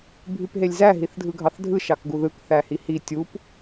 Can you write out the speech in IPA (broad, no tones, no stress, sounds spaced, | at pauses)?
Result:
bʱ y p ɦ e lʲ z æ ɦ i θ dʱ ɯ ɡʱ ɑ θ dʱ ɯ ʃ ɑ k ɡ u ð ɯ k θ æ h i h i tʲ u p